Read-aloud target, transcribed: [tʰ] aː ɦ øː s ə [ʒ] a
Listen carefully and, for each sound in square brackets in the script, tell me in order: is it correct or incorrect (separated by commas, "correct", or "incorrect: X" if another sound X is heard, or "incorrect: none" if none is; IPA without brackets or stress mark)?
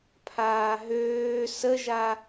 incorrect: pʰ, correct